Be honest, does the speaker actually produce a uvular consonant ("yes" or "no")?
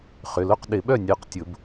yes